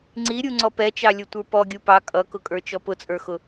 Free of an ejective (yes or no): no